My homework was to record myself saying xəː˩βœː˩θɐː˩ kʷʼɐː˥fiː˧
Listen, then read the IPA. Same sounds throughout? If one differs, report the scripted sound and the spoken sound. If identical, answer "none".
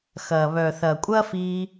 əː˩ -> ɐː˩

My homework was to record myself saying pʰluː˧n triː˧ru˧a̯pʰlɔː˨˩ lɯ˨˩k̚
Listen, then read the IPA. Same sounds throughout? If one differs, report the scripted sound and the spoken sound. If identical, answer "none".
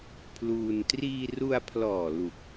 ɯ˨˩ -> u˨˩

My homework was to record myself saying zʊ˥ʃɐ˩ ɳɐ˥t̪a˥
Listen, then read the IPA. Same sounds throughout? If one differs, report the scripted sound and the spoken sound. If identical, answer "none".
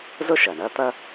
a˥ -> ɐ˥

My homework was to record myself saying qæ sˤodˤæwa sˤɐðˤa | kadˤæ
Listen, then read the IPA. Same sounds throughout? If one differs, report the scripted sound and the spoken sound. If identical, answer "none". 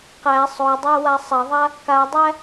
none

